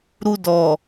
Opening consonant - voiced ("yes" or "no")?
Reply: yes